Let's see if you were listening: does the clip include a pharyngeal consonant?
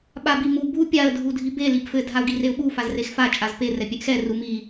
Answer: no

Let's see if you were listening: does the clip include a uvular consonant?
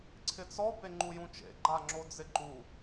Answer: no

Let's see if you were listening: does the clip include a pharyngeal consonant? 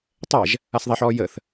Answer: yes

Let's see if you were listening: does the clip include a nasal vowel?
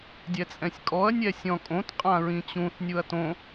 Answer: yes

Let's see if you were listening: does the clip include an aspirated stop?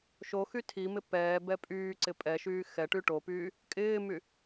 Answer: yes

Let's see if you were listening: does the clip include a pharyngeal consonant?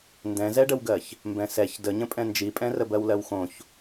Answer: no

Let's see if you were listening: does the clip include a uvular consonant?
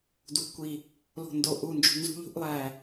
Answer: no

